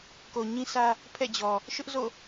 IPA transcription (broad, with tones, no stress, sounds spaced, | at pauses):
k o˨ ɲ ĩ˦ s ä˦ | pʰ ɛ̰˦˨ d͡ʑ ɔ˨ | ʃ ʊ˦ ʔ z o̰˦˨